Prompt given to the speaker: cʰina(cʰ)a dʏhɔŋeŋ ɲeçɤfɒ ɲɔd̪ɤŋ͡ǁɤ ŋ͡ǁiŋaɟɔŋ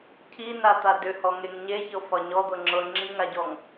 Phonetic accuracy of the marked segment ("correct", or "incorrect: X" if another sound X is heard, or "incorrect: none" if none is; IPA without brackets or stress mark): incorrect: t̪